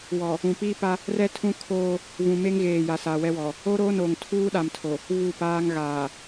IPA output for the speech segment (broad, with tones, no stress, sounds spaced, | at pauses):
w ɔ˨ | ũ˨ p iː˦ p a˦ | r ɛ˦ tʰ ũ˦ kʰ oː˦ | v ũ˨ m e˦ ŋ ɣ eː˨ j a˨ s aː˨ w ɛ˦ w ɔ˨ | o˦ ɾ oː˦ n oː˨ ŋ tʰ uː˦ ɗ a˨ m tʰ o˨ | v u˦˨ p aː˦ ŋ ɣ aː˨